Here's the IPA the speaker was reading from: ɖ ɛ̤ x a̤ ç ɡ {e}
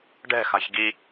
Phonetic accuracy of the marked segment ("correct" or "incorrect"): incorrect